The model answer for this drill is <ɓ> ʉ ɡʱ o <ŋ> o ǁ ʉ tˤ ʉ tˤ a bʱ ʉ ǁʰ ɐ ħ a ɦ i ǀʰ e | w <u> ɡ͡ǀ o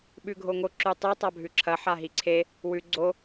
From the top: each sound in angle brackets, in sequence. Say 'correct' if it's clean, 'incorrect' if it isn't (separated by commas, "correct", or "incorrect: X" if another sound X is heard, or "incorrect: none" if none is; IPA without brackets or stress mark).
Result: correct, correct, incorrect: ʉ